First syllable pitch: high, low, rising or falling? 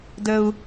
high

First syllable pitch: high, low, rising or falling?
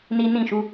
high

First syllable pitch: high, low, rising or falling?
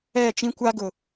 falling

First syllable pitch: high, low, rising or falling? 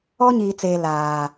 high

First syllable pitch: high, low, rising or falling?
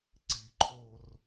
low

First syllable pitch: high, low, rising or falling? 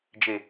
low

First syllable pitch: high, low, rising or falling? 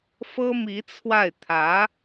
high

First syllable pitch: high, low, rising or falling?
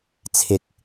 low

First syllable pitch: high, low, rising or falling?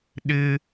high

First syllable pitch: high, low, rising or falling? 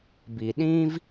low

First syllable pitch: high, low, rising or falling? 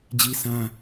high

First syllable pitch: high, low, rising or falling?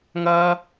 high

